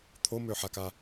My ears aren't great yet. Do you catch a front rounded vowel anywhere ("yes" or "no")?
yes